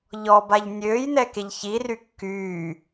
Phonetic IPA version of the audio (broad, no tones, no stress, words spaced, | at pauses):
ʎɔbaʎ nʲøːjnɛkeʎ çiry kːyː